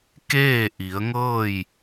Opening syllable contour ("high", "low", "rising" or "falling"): falling